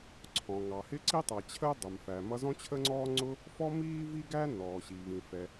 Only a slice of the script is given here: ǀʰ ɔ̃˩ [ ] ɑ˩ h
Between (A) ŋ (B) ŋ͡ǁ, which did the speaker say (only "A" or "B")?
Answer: A